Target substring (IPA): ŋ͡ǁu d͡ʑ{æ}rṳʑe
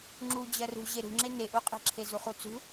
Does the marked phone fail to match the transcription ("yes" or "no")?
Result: yes